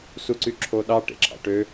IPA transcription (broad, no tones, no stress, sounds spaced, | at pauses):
s u ǀ y ǁʰ o ɗ ɑ ʈ ḛ ǁʰ ɑ̰ ʈ ø